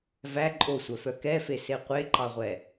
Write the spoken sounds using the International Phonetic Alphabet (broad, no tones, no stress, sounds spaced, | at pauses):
v æ ǃʼ o sʷ œ f œ k ɛ f e s e qʷ e ǃ ɑ ʁʷ ɛ